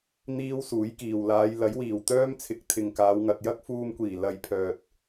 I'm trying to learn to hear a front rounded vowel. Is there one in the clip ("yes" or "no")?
yes